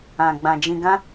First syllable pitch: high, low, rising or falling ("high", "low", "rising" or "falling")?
low